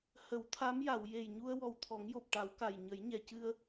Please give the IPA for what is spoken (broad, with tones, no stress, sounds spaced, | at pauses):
h ə˨˩˦ w t̪ʰ a˧˥ m j a˨˩˨ w j e˨˩ j ɲ u˧ ə̯ w ɔ˨˩ w t̪ʰ ɔ˨˩˦ ŋ j o˨˩ p̚ ʈ a˨˩˦ w k a˨˩ j ɲ ə˨˩˦ j ɲ ɛ˨˩˨ c ɨ˧ ə̯